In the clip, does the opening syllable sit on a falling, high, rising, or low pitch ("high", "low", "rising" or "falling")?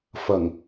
low